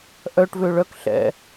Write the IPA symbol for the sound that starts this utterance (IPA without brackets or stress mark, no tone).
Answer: ʔ